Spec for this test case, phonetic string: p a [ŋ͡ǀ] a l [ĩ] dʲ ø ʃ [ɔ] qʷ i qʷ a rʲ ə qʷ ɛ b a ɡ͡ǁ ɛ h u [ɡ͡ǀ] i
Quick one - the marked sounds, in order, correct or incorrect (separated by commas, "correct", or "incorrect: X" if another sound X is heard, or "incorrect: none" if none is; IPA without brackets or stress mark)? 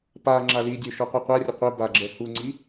incorrect: ŋ͡ǁ, incorrect: i, correct, incorrect: ŋ͡ǀ